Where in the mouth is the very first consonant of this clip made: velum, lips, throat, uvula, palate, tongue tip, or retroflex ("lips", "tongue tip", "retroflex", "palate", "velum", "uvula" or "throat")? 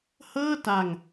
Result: throat